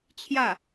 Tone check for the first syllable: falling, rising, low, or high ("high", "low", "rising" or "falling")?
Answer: falling